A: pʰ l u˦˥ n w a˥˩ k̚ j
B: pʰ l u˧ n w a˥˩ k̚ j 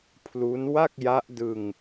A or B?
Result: A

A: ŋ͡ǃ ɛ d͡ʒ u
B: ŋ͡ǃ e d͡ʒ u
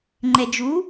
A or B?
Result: A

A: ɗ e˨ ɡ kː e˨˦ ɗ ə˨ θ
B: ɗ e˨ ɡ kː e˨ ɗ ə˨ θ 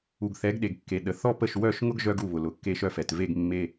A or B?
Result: B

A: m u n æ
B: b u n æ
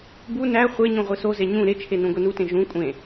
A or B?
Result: B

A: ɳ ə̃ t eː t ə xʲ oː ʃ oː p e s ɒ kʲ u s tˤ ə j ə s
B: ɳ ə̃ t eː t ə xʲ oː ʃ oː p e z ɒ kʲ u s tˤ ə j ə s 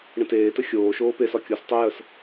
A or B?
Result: A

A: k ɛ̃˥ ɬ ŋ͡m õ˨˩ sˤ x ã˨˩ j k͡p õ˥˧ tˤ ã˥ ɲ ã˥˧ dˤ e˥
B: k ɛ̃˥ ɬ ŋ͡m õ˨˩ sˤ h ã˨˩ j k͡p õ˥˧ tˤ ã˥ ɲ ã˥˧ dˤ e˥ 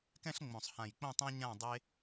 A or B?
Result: B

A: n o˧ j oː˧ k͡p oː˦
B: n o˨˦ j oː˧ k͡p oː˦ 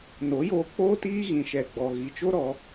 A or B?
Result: B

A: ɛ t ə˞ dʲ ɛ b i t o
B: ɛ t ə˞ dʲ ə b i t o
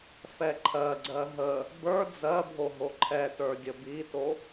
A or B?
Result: B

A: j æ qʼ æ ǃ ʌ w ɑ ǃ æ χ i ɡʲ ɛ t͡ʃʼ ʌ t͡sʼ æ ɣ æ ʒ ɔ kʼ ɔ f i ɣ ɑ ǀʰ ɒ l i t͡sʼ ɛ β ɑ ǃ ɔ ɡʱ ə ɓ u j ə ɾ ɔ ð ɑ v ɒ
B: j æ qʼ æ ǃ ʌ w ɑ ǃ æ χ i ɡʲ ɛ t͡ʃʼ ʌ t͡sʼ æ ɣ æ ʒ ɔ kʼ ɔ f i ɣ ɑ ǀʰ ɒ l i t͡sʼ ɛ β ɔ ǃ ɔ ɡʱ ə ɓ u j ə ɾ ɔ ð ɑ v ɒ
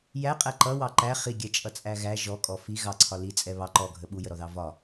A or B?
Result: A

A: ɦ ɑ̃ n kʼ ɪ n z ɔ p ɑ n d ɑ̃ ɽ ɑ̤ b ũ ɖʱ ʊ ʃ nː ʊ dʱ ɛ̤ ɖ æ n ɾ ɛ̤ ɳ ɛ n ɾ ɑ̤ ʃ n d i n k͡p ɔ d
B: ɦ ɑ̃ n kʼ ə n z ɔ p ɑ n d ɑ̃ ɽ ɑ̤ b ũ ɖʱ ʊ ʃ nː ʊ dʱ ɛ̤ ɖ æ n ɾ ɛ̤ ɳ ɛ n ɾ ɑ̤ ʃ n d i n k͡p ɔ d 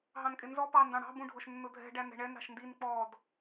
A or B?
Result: A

